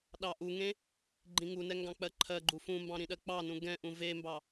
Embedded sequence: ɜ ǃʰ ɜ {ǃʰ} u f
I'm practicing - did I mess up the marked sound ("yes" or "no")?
yes